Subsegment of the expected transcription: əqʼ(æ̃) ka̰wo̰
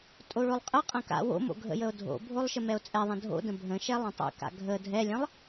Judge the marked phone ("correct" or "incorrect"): incorrect